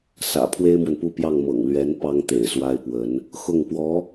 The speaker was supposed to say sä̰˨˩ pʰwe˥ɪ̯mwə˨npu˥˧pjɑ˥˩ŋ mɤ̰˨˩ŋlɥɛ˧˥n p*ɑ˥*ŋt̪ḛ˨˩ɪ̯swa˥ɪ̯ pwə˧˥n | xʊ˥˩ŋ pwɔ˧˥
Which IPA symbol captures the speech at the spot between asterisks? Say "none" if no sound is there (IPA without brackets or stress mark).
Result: ɑ˥